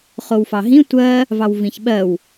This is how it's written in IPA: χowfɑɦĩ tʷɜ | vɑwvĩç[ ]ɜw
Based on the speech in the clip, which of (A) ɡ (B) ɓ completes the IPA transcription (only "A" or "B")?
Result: B